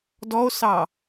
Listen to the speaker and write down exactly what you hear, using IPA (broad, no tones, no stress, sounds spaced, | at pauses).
d ɔ o̯ s ɑ